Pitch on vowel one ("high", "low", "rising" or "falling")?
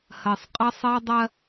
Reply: low